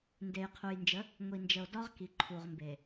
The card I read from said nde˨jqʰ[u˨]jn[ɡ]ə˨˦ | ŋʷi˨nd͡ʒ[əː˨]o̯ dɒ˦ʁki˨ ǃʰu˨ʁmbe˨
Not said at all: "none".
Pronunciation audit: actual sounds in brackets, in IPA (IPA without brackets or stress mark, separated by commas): u˨, d͡ʒ, ə˨